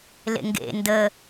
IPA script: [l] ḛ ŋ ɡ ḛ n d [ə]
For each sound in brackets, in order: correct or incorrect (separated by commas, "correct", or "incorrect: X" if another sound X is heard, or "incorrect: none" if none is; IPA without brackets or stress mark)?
correct, correct